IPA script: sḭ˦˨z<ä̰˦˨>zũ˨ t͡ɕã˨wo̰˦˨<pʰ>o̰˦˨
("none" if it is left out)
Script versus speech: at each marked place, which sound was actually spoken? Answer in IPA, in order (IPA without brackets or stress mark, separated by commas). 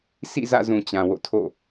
ä̰˦˨, tʰ